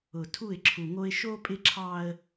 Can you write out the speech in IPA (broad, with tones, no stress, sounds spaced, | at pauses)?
ʊ˨ tʰ u˦˨ ɪ̯ ǁʰ u˨ ŋ o˦ ɪ̯ ʃ o˦ pʼ ɪ˦ ǁʰ ɑ˦ ə̯